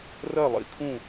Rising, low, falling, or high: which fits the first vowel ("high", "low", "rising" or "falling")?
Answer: falling